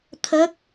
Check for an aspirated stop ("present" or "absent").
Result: present